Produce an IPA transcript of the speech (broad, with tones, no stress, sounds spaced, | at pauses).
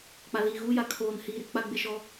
k͡p a˨ l iː˨ ɣ uː˦ j a˨ kʰ oː˨ n h iː˨ ɾ ɪ˦ k͡p a˦ ɡ͡b ɪ˦ ʃ ɔ˦